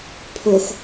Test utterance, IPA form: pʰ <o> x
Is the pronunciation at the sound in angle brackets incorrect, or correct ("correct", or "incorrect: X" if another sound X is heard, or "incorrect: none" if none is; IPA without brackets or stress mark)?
correct